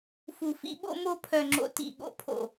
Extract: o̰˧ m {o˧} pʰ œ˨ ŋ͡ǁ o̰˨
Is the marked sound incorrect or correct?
correct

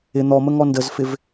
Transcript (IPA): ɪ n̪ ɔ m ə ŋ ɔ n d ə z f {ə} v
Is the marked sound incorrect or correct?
incorrect: ɪ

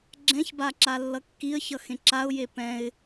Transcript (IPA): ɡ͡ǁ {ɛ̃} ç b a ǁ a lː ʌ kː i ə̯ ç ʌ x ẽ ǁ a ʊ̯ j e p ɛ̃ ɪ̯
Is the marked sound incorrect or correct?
correct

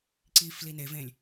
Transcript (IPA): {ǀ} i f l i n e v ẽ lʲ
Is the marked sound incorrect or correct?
correct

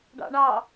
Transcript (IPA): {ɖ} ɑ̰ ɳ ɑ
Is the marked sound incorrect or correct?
correct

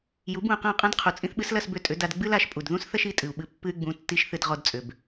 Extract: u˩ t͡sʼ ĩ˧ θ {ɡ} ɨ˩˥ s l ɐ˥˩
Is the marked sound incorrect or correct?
incorrect: ɓ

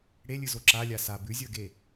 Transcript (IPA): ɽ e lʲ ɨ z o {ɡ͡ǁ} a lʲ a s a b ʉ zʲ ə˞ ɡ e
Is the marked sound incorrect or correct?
incorrect: ǁ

